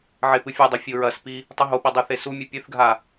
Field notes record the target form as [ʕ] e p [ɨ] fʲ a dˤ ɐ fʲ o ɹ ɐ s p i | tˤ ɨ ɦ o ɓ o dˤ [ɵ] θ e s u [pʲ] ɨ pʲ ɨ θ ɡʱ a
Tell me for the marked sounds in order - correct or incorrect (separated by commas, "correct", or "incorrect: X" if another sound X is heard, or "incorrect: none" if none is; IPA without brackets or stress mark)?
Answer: correct, correct, correct, incorrect: mʲ